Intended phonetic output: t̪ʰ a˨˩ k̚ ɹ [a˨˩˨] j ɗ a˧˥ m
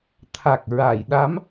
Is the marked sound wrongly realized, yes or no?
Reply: no